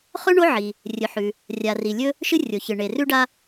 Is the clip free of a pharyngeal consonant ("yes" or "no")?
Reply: no